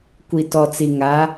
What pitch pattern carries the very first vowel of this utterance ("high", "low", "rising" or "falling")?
low